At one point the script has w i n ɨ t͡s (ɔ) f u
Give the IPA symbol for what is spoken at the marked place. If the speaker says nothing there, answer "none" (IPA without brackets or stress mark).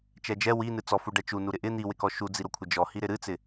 ɔ